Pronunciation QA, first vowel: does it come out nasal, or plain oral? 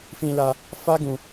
nasal